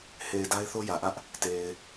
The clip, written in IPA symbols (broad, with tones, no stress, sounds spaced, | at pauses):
h e˨ ɪ̯ d a˦ ɪ̯ θ o˦ j ä˨ ʔ ä˦ ʔ | t e˨ ɪ̯